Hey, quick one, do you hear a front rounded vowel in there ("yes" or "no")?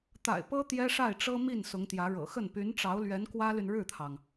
yes